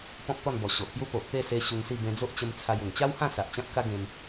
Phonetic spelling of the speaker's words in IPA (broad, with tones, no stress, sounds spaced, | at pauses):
p ɔ̃˦ p̚ t̪ ɔ˥˧ n b ɔ˨˩ ɕ o˨ ʔ p j u˦ p o˨ ʔ t̪ e˥˧ s e˧ ɕ u˧ ŋ s i˥˧ b ẽ˧ d͡z o˦ ʔ t͡ɕ ə˧ m t͡sʰ a˧ j u˨˩ ŋ t͡ɕ a˦ w h ã˥˧ s a˨ ʔ t͡ɕ ã˦ p̚ k a˦ ɡ ẽ˧ m